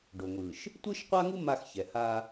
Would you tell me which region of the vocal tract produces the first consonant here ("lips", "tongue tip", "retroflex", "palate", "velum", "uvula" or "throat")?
retroflex